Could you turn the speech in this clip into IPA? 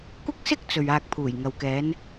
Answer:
kʷɪ˥k̚sɪ˥k̚ t͡sɵ˨ɥaː˧k̚pʰuː˨˩jŋɐ˨w kɛː˨˧n

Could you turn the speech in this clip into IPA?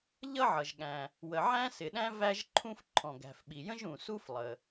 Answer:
ʎʌ˥ʕʌ˩ʒɠæ̃˩ | wə˩ʕæ̃˥sɪ˩ɗæ̃˥ væ˥ʒǃʰũ˥f ǃʰɔ̃˩ɡæ̤˩fɓi˩jə̃˥ʒ ũ˩su˥f lˠə˩

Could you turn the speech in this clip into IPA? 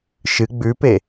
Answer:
ʃɨ ɡ͡bʉpe

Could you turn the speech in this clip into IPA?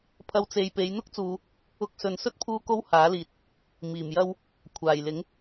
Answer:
pʰɐ˧wt͡se˨jpe˨˧j n̪ʊ˥k̚t͡suː˨ | ʊ˧k̚sɵ˨nsɵ˥t̚ pʰuː˥ko˥w haː˨˥liː˨t̚ | miː˨˩m jɐ˧w | kʷʰaː˨˩j lɪ˨˥ŋ

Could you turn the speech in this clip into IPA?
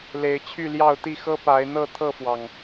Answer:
le˨˦ɪ̯t͡ɕʰy˥˨ljɑ˥˨ʊ̯t̪i˥˨ xɤ˦pa˨˦ɪ̯ n̪ɤ˥˨t̪ʰɤ˥˨fwɑ˩ŋ

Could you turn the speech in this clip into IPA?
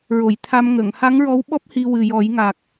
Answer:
ɹo˨˩˨jt̪ʰa˧m ŋə˨˩˨ŋ ha˧˥ŋɹɔ˧˥wɓɔ˦˥p̚ hi˧wɨ˨˩jɔ˨˩˦j ŋa˨˩k̚

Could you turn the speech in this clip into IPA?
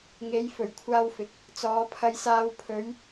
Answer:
ŋe˨˧jfɵ˨˩ɥkʷʰaː˧wfɪ˨k̚ | t͡sɔː˨˧pʰɐ˧jsaː˧w pʰɵ˨˧ɥ

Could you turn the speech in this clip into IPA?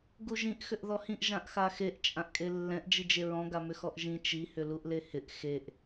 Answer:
ɡuʒĩʔ xʏʔðɔhĩʔ ʒãʔxaxeʔ t͡ʃʼãʔkʼelːɛ̃ʔ d͡ʒid͡ʒeɹɔ̃ ɡamʏxɔʔʒĩ t͡ʃi hʏluʔlehɪʔ xeʔ

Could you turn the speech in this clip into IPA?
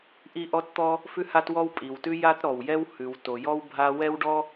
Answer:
ʔi˥ʔɔ˥tt̪ɔ˥ | fʉ˥ha˥t wɔ˥wpʼi˩wtʉ˥ ja˥tɾɔ˩wjɛ˥w hʉ˩wto˩jɔ˥w bʱa˥ wɛ˥wɖɔ˥

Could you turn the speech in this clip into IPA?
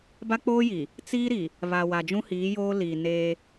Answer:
ba˦k͡poː˦ ji˨ | t͡siː˦ɾi˨ | βa˨wa˨ d͡ʒũ˦hiː˨˦joː˦ liː˨neː˦

